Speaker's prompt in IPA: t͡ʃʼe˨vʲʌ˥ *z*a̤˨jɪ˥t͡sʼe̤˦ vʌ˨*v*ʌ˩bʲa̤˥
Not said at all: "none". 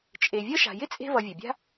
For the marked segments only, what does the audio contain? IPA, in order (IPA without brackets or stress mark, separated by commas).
ʃ, vʲ